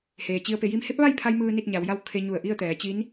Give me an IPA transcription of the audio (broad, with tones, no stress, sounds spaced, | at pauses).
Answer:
h eː˩ t͡ɕ i˧ ə̯ p e˩˧ j i˧˥ m h e˧˥ p̚ ʋ a˥˨ j pʰ a˧ j m ɯː˧ n i˥˨ t̚ ɲ a˩˧ w j a˥˨ w kʰ e˧ ɲ u˧˩ ə̯ ʔ i˥˨ ə̯ t̪ ɛː˩˧ t͡ɕ i˧˥ n